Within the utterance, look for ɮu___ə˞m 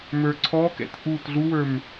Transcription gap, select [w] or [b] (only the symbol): w